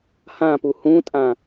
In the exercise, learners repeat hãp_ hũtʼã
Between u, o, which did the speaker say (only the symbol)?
u